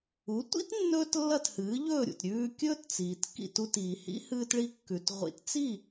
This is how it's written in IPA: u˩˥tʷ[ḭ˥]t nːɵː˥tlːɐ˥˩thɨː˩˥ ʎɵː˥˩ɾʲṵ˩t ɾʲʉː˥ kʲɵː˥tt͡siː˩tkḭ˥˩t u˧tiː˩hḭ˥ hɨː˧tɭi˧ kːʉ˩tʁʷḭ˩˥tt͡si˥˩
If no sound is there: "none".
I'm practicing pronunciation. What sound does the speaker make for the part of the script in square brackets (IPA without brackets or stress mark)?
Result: ḭ˥